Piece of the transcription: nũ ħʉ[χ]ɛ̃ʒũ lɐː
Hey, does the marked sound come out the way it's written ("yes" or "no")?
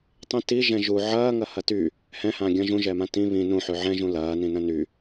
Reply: no